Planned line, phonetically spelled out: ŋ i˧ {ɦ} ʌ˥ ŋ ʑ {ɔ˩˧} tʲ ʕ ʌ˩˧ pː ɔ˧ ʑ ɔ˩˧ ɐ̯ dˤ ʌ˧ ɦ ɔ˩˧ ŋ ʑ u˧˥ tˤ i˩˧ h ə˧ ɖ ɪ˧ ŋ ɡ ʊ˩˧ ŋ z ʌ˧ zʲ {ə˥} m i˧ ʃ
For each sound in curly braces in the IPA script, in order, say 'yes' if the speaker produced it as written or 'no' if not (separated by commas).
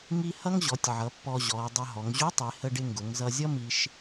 no, yes, no